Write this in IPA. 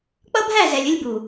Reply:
k͡pʌ˦bʱæ˦˨zɛ˨lʲ ə˦lʲbu˨

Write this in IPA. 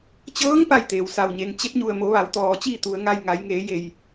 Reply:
t͡ɕɤː˧˥ŋ pa˥˨jt̪eː˩w sa˩wɲe˩ŋ t͡ɕe˧˥p̚ɲu˧˩ə̯mo˩˧ ʋa˩˧wt̪ɔː˩t͡ɕiː˥˨ t̪u˩˧ə̯ŋa˧j ŋa˩˧jŋeː˩˧ je˧˩j

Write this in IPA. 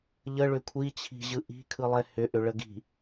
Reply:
ʎəɭʏ kʷʰit͡ɕʰi̤ʑɯ ʔi̤kʰɯlˠɛ hʏʔʏɭəɡi̤

